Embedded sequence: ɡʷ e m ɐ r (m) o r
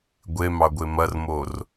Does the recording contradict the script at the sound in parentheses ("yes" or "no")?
no